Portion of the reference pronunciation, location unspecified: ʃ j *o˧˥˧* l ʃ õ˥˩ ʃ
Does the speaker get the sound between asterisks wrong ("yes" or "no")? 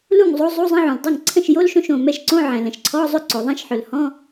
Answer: no